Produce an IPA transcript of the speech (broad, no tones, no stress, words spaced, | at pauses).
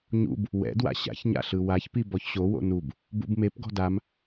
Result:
ɲṵb | wɛ̰dwa̰ ɕa̰çɲa̰ɬɯ waçpi bɔçɕo wo̰nub | bṵbmep ɡɔ̤dam